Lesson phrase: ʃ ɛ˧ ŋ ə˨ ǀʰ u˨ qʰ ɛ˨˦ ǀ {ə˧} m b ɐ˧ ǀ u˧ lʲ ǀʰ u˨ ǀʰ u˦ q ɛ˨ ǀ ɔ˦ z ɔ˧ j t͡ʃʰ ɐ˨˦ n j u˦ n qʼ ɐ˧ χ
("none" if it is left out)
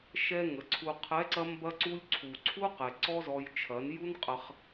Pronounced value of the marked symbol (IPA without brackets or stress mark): ɐ˧